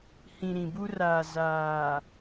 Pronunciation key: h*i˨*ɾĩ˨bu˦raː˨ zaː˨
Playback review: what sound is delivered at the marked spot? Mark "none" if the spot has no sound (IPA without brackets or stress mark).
ĩ˨